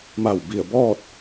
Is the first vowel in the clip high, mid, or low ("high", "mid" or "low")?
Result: low